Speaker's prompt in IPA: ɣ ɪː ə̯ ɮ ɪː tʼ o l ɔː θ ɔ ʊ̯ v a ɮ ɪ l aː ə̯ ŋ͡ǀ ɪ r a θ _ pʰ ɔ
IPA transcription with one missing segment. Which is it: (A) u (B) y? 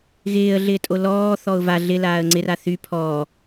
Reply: B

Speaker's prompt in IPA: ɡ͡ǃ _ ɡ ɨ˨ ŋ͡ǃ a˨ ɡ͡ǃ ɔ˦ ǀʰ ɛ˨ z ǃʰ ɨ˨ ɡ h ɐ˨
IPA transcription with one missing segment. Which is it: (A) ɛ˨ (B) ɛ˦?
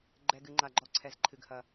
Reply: A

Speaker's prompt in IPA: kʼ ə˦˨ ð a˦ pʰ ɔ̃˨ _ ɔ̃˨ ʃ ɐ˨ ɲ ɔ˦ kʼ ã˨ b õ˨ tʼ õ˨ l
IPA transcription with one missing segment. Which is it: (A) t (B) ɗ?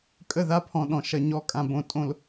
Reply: B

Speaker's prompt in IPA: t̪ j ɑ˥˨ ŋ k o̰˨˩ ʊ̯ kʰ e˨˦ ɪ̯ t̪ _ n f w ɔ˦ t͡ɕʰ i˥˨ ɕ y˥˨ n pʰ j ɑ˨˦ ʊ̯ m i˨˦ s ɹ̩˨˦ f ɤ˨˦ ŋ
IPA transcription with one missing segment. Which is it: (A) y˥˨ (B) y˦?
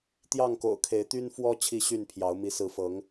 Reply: B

